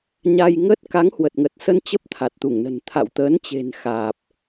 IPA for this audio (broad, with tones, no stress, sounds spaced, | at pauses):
ɲ a˧ j ŋ ə˦˥ t̚ k a˨˦ ŋ h w ə˨˩ t̚ ŋ ə˨˩ t̚ s ə˧ n t͡ɕ ə˦˥ p̚ t̪ʰ a˨˩ t̚ t̪ u˧˩ ŋ n ə̤˨˩ n t̪ʰ a̰˧˨ w t̪ əː˨˦ n t͡ɕ e̤˨˩ n x aː˨˩ p̚